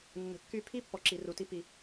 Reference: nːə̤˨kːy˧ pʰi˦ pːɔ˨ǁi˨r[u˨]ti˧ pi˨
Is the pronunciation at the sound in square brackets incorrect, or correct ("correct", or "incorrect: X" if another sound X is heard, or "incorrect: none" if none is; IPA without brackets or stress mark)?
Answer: correct